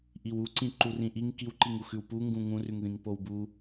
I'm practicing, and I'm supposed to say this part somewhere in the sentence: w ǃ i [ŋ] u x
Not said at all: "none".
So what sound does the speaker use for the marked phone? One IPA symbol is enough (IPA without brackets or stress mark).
ŋ